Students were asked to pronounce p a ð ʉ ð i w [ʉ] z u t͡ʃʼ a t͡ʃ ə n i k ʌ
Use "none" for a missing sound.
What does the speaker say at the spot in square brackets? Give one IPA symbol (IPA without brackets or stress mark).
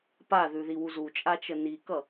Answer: u